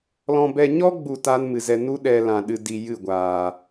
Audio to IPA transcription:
l ɔ̃˧ b ɛ˧ ɲ ɔ˦ ɡ͡b u˦˨ t aː˦ n m ɨ˨ z ɛ˧ n u˦ ɗ ɛ˧ l ã˨ ɗ ɨ˧ d i˧ j ɨ˦˨ ɡʷ aː˨

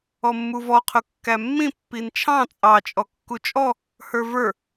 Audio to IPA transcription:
ɔ mː u v ɔ qʰ ʊ kː æ mː ĩ pː i n t͡ʃʰ ɑ̃ t͡sʼ ɑ t͡ʃʼ ɔ kː u t͡ʃʼ ɔ | h ə˞ v ə˞

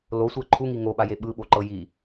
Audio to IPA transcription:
l o sʷ ɛ ǃʰ u ŋ i ŋ o ɓ a j e ɓ ɯ ɓ o ǃ ɤ j i

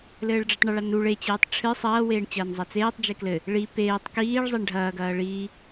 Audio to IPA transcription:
l ɘː ɭ ɖ͡ʐ i tˤ ɳ ɨ ɭ a n u ɭ e t͡ɕ eː tˤ ʈ͡ʂʰ ɨ sˤ ɐː w eː ɳ t͡ɕ ɐː n zˤ a t͡s eː tˤ d͡ʒ e k l ɘ | ɭ i p eː tˤ k iː ɭ zˤ e ɳ ɖʱ ɐː ɡ ɐː ɭ iː

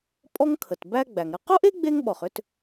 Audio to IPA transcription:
pʼ ɔ˥ ŋ kʰ ə˩ t b æ˥ ɡ͡b æ˩ ŋ ɾ ə˥ q o˥ ʔ e˥ ɡ͡b e˥ ŋ ɓ ɔ˩ χ ʏ˥ t

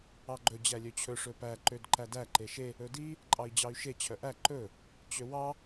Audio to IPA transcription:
ɑ ɡ͡ǃ ɵ d͡ʑ æ lʲ ø t͡ɕʰ ɵ ʂ ɵ p æ ǃ ø d ǃ æ d æ ǃ e ʃ e | ɵ d i | ǃʼ ɑ i̯ d͡ʑ ɑ y̯ ʃ e t͡ɕʰ œ ʔ æ ǃ ɵ | t͡ɕ ø w ɑ

